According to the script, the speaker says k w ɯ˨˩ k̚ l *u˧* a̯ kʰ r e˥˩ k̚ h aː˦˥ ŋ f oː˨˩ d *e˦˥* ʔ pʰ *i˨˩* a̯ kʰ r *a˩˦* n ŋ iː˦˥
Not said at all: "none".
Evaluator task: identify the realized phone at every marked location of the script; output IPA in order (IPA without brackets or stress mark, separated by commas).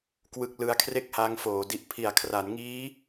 ɯ˧, i˦˥, i˨˩, a˩˦